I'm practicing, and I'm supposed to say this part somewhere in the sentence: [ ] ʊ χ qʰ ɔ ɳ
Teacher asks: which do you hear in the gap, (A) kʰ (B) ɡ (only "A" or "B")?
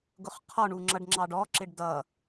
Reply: B